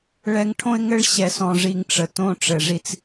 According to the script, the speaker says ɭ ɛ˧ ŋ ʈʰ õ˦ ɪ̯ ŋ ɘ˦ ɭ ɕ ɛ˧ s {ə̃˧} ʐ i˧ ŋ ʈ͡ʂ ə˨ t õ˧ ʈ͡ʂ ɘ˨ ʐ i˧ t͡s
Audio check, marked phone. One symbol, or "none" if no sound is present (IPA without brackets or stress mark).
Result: ɔ̃˧